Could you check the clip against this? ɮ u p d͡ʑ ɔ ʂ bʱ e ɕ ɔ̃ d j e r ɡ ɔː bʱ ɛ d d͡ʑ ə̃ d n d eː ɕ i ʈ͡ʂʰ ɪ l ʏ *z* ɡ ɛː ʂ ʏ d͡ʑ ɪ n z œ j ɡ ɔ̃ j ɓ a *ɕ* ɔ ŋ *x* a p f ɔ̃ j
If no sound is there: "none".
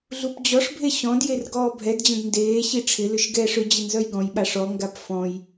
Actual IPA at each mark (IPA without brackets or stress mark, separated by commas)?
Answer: ʃ, ʂ, ɡ